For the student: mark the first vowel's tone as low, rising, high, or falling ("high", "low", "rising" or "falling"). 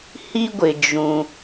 high